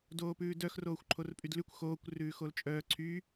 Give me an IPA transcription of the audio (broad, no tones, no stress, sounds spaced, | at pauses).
d oː p ʉː d œ x r oː xʷ ǃʰ o r pʼ y d l ʉ kʷ x oː kʷ r ʉː x o l t͡ʃʼ œː ǀʰ y